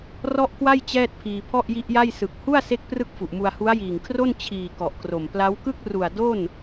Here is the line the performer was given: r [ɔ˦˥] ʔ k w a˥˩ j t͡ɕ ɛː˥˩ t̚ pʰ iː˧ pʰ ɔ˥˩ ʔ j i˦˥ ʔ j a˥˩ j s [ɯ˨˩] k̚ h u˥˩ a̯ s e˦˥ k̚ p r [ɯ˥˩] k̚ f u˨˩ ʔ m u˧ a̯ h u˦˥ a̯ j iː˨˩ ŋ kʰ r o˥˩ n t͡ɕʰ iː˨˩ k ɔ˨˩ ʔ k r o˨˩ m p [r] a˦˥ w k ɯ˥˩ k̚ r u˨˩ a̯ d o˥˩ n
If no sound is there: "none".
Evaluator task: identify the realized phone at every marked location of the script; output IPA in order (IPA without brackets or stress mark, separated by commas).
ɔ˥˩, ɯ˨˩, ɯ˥˩, l